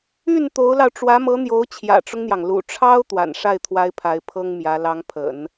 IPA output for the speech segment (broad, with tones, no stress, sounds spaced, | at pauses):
y˥˩ n t̪ o˧˥ ʊ̯ l ɑ˧ ʊ̯ ʈ͡ʂ w ä˧˥ m ɤ˧˥ n̪ j o˧˥ ʊ̯ t͡ɕʰ j ä̰˨˩ ʈ͡ʂ ʊ˦ ŋ n̪ j ɑ˩ ŋ l ṵ˨˩ ʈ͡ʂʰ ɑ˥ ʊ̯ t̪ w a̰˨˩ n ʂ a˥˩ ɪ̯ t̪ʰ w a˧˥ ɪ̯ pʰ a˧˥ ɪ̯ pʰ ɤ˥ ŋ m j ä˧˥ l ɑ˧˥ ŋ pʰ ə̰˨˩˦ n